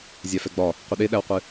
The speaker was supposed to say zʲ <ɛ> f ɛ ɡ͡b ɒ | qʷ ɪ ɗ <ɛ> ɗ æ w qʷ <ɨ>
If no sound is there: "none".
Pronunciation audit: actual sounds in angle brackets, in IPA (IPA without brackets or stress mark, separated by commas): æ, e, ɨ